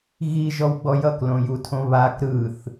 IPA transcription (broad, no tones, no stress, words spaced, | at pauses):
ɣiʒɔwɡ͡bɔ jʌklõjutʰõ βak ɾɯθ